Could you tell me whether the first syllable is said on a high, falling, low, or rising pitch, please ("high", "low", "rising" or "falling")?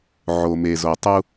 low